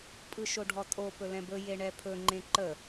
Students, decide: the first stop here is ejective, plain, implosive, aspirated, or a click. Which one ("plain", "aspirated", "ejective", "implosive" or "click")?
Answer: ejective